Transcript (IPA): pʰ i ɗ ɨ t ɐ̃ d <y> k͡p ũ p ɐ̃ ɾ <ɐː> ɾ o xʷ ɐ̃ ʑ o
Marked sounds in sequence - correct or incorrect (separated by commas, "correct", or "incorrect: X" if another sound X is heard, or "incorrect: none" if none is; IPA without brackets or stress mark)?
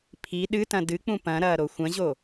incorrect: ɨ, correct